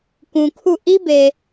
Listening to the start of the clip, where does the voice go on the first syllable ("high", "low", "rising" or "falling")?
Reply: low